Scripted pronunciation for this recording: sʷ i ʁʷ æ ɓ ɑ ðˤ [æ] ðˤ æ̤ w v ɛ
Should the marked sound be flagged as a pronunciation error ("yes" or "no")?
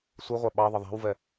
yes